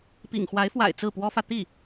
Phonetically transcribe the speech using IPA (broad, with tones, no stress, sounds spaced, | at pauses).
p ḭ˨˩ ŋ x w a˧˥ ɪ̯ f w a̰˨˩ ɪ̯ t͡s ɹ̩˥˩ p w ɔ˥ f ä˨ t̪ i˥˩